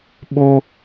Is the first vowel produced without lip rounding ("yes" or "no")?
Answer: no